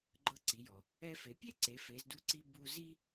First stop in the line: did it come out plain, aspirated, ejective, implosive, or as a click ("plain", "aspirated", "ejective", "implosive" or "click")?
click